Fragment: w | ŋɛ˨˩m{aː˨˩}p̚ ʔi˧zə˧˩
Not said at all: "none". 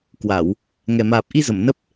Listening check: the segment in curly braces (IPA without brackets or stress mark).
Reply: aː˨˩